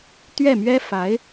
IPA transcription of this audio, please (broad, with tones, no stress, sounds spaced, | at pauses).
t̪ ɥ ɛ˥˩ m ɥ ɛ˥ f a˧˥ ɪ̯